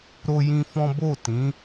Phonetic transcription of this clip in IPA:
ɾ o˦ j ĩ˦ f ɔ̃˦ b o˦˨ t ĩ˨˦

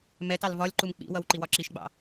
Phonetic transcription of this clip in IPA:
m ɛ t ɑ l v ɒ lʲ ǃ u m k͡p ḭ w ʌ w ǃ i w ɒ ǁ i ʃ ɡ͡b ɑ̰

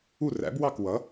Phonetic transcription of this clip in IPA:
u˥˩ r æ̰˩˥ b w ɑ˥˩ k w ʌ˩˥

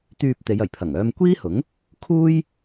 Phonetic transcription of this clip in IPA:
t̪ yː˧ p̚ t̪ e˨˧ j ɐ˨˩ j pʰ ɐ˨˩ ŋ œː˧ m kʷ iː˥ h ʊ˨˥ ŋ | kʰ uː˥ j

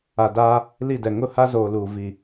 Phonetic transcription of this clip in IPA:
a˨ d a˦ | l i˦˨ d ɛ˨ ŋ ʊ˦˨ h a˦ z oː˨ l uː˨ v i˨

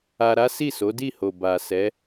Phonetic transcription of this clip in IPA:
a˧ ɾ a˦ s i˦˨ s o˨˦ d i˦˨ h o˨ b a˨ s ɛ˨˦

